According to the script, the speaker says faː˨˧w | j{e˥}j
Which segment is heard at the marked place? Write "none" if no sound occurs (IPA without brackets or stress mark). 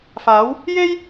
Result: e˥